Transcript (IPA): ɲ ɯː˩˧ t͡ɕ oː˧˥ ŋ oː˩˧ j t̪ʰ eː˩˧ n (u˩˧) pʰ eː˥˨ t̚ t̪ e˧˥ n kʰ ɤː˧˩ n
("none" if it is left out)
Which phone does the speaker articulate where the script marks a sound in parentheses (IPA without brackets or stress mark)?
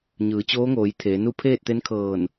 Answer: u˥˨